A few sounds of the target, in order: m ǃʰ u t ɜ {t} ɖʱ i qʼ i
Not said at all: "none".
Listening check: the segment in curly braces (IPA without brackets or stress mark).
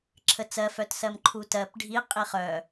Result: p